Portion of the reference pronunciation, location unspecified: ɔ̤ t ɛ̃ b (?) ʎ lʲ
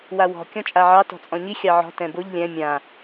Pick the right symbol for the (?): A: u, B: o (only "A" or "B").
B